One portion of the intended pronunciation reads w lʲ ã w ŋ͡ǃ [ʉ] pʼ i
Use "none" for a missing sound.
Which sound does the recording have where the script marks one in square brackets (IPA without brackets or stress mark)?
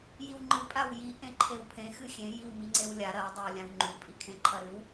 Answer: ʉ